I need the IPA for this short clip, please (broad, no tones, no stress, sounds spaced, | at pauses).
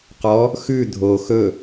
q ɔ | x ʉ dʱ o x ɵ